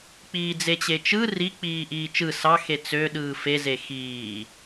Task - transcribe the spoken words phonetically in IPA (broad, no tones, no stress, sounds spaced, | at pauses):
k͡p iː d͡z e t͡ɕ e t͡ʃ ɯ r i k͡p iː ʔ iː t͡ʃ ɯ s ɑ x e t͡s ø ɗ ɯː f e z e x iː